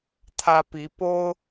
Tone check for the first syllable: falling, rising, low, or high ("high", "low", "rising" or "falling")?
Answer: high